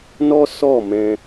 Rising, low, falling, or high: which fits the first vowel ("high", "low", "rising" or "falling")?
high